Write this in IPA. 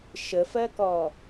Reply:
ʃ ə f ɜ k ɔ

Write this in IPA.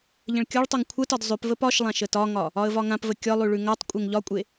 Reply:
ʎ ə̃ ɭ kʲ ɒ ɭ tˤ o ŋ kʷʰ ə t ɒ d zˤ ʉ p v ə p ɒ ʃ lˠ ã ʃ ə t ɒ ŋ ɒ | ɒ ə̯ v ɒ ŋ ã p v ə kʲ ɒ lˠ ʉ ɭ ʉ ŋ a tˤ kʷʼ e ŋ ʎ ɒ kʷʼ e

